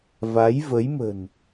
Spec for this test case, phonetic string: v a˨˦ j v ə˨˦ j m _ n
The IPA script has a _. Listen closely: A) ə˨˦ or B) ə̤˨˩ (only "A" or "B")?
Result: B